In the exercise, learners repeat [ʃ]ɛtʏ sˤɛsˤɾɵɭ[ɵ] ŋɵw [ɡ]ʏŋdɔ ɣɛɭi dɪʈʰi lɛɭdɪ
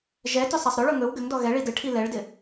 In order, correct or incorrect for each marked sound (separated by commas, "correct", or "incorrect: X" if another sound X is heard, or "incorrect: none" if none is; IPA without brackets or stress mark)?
incorrect: ʒ, correct, correct